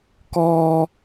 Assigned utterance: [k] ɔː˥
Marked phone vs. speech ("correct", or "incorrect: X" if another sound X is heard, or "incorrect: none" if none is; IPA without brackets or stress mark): correct